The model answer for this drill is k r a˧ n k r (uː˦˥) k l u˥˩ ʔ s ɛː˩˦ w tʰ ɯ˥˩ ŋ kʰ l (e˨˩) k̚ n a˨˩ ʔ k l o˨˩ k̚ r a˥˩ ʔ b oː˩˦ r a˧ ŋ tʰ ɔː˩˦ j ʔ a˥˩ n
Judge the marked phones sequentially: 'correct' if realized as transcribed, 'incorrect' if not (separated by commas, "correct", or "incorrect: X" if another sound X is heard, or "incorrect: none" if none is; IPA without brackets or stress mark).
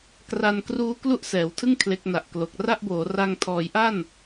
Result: correct, incorrect: e˦˥